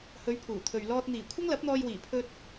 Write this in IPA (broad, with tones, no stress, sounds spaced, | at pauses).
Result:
h ɵ˨˧ ɥ pʰ uː˨˩ t̪ʰ ɵ˨ ɥ l ɔː˧ t̚ n̪ iː˨˩ kʷʰ ɐ˥ ŋ l ɐ˨˥ p̚ n̪ ɔː˧ j w iː˨˩ pʰ ɵ˧ t̚